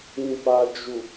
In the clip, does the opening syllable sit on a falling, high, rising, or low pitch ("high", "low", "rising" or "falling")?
low